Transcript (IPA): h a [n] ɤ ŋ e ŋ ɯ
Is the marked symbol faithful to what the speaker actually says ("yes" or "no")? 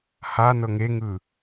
yes